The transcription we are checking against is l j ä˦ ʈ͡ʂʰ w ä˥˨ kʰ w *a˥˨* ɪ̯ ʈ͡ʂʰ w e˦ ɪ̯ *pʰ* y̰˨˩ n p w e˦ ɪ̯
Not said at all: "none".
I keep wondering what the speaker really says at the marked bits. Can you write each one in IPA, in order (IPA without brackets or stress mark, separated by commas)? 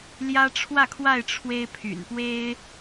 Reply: a˥˨, pʰ